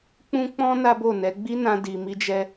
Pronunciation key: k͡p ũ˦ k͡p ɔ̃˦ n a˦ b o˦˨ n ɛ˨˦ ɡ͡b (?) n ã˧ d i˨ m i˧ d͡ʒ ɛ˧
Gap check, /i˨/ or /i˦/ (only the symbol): i˦